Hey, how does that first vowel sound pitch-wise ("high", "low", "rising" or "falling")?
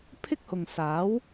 high